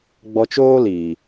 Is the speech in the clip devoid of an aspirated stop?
yes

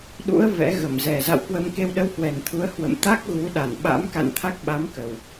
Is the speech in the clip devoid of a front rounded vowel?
yes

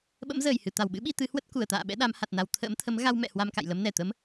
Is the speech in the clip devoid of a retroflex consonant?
yes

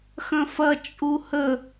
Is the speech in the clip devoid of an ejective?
no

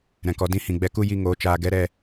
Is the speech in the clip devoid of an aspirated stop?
yes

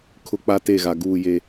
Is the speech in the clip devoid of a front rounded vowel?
yes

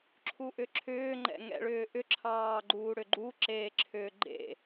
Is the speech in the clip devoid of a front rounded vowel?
no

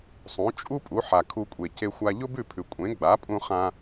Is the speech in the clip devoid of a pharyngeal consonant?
no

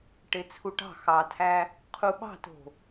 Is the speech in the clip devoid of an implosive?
no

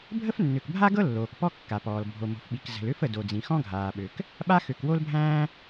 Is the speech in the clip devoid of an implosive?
no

